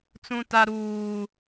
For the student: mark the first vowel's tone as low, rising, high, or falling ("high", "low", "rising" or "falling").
high